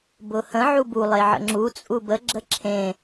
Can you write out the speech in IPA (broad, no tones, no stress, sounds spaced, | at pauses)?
b ʊ h ə̃ ʕ u b u lˠ e ʕ ə̰ ŋ͡ǁ u t͡sʼ u b ə ɡ͡ǁ ə ǁʰ ẽ